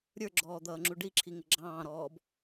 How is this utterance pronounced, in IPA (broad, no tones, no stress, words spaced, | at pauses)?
ɾʲə˞ɡ͡ǁɔːd̪ʌːŋ͡ǁu ɖiǁʰiŋɪ ɡ͡ǁɑ̃ːɾɔːb